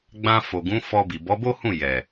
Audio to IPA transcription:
ɡ͡b ã˧ f o˨ ɡ ũ˨˦ f ɔ˧ b i˨ b ɔ˨˦ b o˦ h ũ˦˨ j ɛ˨

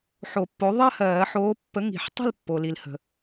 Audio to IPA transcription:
ħ o˨˩˦ pː o˨˥ ðˤ ɜ˥˧ h ɜː˨˩˦ ħ oː˨˥ pː ə˨˥ ŋ i̤˨˩˦ ħ tˤ ə̤˥˧ l pː o˨ l i˨ l h ə̤˨

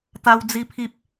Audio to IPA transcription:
t̪ a˦ w d͡z i˦ pʰ i˦ p̚

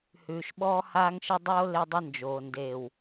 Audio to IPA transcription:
h ʉː˨ ʃ ɓ ɔː˦ h aː˦ ŋ ʃ ə˦ dˤ oː˦ l e˦ dˤ ə˦ n d͡ʒ oː˨ n d eː˨ w

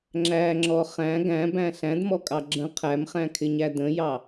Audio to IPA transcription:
ŋ͡ǁ æ ŋ͡ǁ ɔ χ æ̃ ɡ æ̃ b æ̃ ɬ æ̃ d m ɔ kʼ ɑ ɡ͡ǁ ə̃ qʰ æ m χ æ̃ kʰ ɪ ɲ æ d ə̃ j ɑ

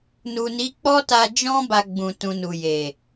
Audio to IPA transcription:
n u˨ n i˨˦ k͡p ɔ˦ t a˧ d͡ʒ ɔ̃˦ b a˧ ɡ͡b ũ˨ t ũ˨ n u˨ j e˨

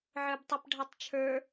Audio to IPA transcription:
ʕ ə˞ b tˤ a p ɖʱ ɑ tˤ t͡ʃʰ ə˞

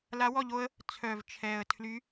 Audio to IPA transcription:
l a˧˥ w ɔ˥˨ ʎ o˥ ə̯ | t͡sʰ œ˨˩ v t͡ʃʰ ɛ˨˩ ə̯ tʰ l y˧˥

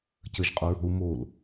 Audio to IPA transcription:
c ə ʒ qʼ o ɹ ɔ̤ u̯ m o l

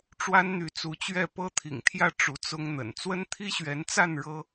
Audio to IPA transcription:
ʈ͡ʂ w a˦ n n̪ y˨˦ t͡s u˨˦ t͡ɕ ɥ ɛ˥˨ p ɤ˦ t̪ʰ ḭ˨˩ ŋ t̪ʰ j ä˥˨ ʈ͡ʂ u˨˦ t͡s ʊ˦ ŋ n̪ ə̰˨˩ n t͡s w ə˦ n t̪ʰ i˦ ɕ ɥ ɛ˨˦ n t͡s a˥˨ n ɻ ɤ˦

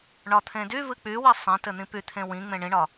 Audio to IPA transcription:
ɳ ɒ t̪ʰ ẽ d y v ɨ k͡p y w i sˤ ẽ t ɘ n̪ ĩ p y t̪ʰ ẽ w ĩ ŋ͡m ẽ ɳ ĩ ɳ ɒ

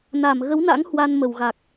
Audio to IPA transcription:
n a˧˩ m ɣ ə˨˦ w n a̰˧˥ ŋ h w a˧ n m ə˧˩ w ɣ a˨˩ k̚

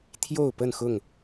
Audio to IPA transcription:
t̪ʰ j o˥˨ ʊ̯ p ə˥˨ n x ʊ˥˨ ŋ

